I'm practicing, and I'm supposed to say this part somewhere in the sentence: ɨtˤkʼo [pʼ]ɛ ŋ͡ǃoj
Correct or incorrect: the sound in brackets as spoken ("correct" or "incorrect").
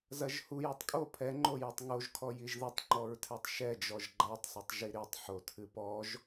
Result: incorrect